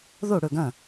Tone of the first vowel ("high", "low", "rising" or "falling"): falling